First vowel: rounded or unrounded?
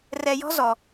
unrounded